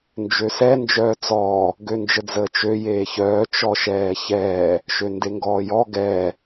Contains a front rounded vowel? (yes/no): yes